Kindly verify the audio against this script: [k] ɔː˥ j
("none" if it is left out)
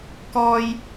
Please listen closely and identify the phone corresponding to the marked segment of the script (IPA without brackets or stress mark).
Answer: k